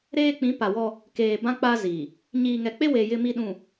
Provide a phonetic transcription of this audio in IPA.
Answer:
ɾeː˦k͡pĩ˨˦ pa˨wɔ˦ | keː˨bã˦k͡pa˦ ziː˨ | ɲiː˨ŋɛ˨k͡pe˦we˨ jɪ˦mi˦ɗũ˨

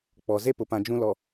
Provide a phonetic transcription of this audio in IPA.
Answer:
k͡pɔ˨ ze˦pʊ˨pã˨ d͡ʒũ˦lɔ˨

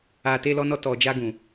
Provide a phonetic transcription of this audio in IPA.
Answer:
a˨te˧ lɔ˧nɔ˧tɔ˨d͡ʒa˧ ɡũ˨

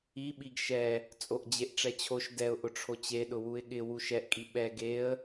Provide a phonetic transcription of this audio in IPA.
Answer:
iɓiɡ ʃɛ | t͡sʼoʔd͡ʑeʔʈ͡ʂɛt͡ɕʰoʃ dɛʊ̯ʔʊ ʈ͡ʂʰot͡ɕeɗʊ wuɪ̯ɠɪ wuʃɛʔkʼi ɓɛ ɡeə̯

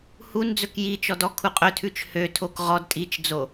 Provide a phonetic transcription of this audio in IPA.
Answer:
hund͡zɵk jit͡ʃɔd ɔkʰuqʼɵtʰʉt͡ʃ høtʰok ʁɔd tʼit͡ʃd͡zo

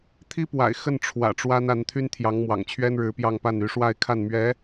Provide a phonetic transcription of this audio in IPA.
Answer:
t̪ʰi˥pwa̰˨˩ɪ̯ xə˥˩nʈ͡ʂʰwä̰˨˩ ʈ͡ʂwa˥na˧˥n t̪ʰy˥nt̪ʰjɑ˧˥ŋ mwɑ̰˨˩ŋt͡ɕʰɥɛ˥nɻɻ̩˧˥ pjɑ˥˧ŋ pa˥˩ny˧˥ʂwa˥˧ɪ̯kʰa˥˩n mɥɛ˧˥

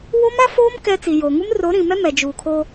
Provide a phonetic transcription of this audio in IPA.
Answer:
wo˦ma˦foː˦m kɛ˦ t͡si˨joː˨ŋu˦m ro˨˦ɾĩ˨mɛ˦ mɛ˨d͡ʒuː˨kʰoː˦

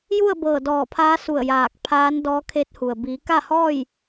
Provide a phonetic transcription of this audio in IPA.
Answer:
ju˥˨ə̯bɤː˧˩ dɔː˧˩pʰaː˧˥su˧˩ə̯ jaː˧˩k̚pʰaː˧˥n dɔː˧˥kʰe˧˥t̚hu˩ə̯ biː˩˧ka˥˨hɔː˥˨j

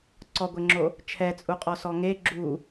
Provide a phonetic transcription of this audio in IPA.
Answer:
ǀɔɡʷeŋ͡ǁo | t͡ʃʰɛt͡sʼuqʼɔsɔ ŋe ɡ͡ǁu

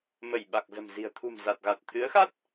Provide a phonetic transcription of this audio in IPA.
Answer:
mə˧˩j ɓa˨˩k̚zə̤˨˩mzi̤˨˩ə̯ t̪ʰṳ˨˩m za˨˩t̚ɣa˨˩t̚ t̪ʰɨ˨˦ə̯xa˦˥t̚

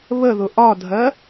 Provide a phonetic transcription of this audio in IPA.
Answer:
βəðʊ ʔɒdʱɜ

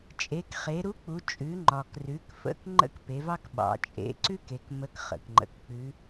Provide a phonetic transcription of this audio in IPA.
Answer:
t͡ʃʼe˩˧kχe˩˧ɾu˧˥k͡pu˩˧ t͡ʃʼʉ˩˧ŋ͡ǃɒ˩krʉ˩˧kfə̰˧˥k ŋ͡ǃə̰˥kpe˩˧vɑ˥kɓɑ̰˩˧ t͡ʃʼḛ˧˥ ǀʉ˥ke˩˧k mə˧˥kχə̰˩kŋ͡ǃə̰˩˧kk͡pʉ˧˥

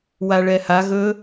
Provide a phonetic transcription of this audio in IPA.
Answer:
waɭɛha ɣɵ

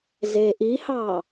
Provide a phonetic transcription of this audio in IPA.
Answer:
zeʔihɑ

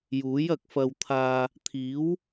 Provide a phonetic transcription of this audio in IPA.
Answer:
juː˨˥jɐ˧k̚fɐ˧w t̪ʰaː˧ | t̪ʰiː˨˥w

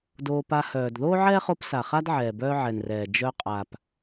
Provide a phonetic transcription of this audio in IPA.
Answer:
doː˧pa˧hœː˨d ðoː˦ʕɛː˦χo˧p sa˨χa˦d ʕɛː˨bœː˦ʕɛ˨nrɛː˨ d͡ʒœ˧qʼa˨p

